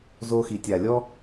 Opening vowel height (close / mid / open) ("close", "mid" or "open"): mid